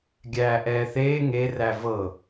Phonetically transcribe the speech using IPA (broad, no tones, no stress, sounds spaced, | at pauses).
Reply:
ɡʲ æː ʔ ɛː θ eː ŋ e r æ v ɤ